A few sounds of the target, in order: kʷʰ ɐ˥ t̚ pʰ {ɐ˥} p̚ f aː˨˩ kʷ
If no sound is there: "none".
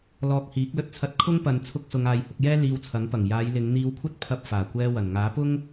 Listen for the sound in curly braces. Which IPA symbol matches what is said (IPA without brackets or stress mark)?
ɐ˧